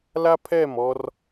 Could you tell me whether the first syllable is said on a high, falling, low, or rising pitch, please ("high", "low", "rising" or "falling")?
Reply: high